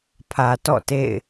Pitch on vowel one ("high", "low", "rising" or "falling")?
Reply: low